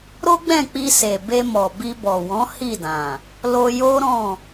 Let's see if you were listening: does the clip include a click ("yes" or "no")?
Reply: no